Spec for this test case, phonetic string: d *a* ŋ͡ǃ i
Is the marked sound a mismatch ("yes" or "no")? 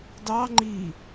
yes